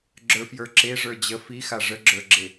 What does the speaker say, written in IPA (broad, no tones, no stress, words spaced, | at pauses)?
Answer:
ɡ͡ǁə˞fjə˞ǁe ʐə˞d͡ʑə fixa ʐəɡ͡ǁə˞ɡ͡ǁe